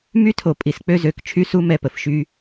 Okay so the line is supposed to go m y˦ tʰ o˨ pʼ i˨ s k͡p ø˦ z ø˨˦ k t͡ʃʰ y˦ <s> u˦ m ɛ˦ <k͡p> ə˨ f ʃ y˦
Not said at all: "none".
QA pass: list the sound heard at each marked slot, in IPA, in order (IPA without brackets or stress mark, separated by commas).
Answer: s, p